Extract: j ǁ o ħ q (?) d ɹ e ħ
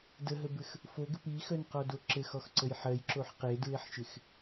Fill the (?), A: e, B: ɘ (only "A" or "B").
A